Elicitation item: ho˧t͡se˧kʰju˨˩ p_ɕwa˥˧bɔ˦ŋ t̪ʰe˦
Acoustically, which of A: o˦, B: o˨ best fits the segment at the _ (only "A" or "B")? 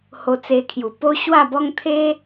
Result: A